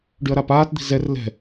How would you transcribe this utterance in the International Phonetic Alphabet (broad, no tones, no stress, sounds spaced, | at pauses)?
ɖ y ɐ̯ ɾ a p aː t d̪ i̤ z ɛ r l ɛ̤